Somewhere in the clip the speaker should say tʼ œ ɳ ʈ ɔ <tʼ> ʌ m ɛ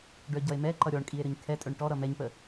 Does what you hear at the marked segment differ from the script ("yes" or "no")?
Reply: yes